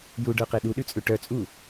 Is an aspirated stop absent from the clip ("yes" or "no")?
yes